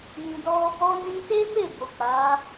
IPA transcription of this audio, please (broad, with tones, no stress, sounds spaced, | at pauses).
j ĩ˨ d ɔ˧ | ɔ˧ n ĩ˧ t e˦ m e˦˨ b o˨ k͡p a˨˦